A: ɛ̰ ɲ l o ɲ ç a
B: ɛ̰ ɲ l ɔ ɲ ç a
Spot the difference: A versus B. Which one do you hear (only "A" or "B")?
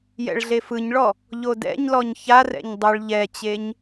B